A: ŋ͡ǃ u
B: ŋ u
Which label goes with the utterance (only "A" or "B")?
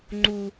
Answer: A